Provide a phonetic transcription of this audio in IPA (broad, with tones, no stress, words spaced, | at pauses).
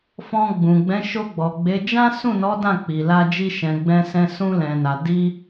fɔ̃˧ɡ͡bũ˨ ɡ͡bɛ̃˨˦ʃo˧ɡ͡bɔ˨ɡ͡be˨˦ d͡ʒã˦sũ˦˨nɔ˨˦ dã˦˨k͡pi˨la˧d͡ʒi˧ ʃɛ̃˨ɡ͡bɛ̃˧sɛ̃˧ sũ˧lɛ̃˨na˨ di˧